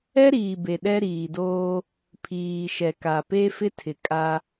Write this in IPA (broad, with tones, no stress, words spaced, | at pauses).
ɛ˦ɾiː˨be˨ ɗɛ˦ ɾiː˨doː˦ | pʰiː˨ʃɛ˨ ka˨pe˦ fɪ˦tʰɪ˨ kʼa˦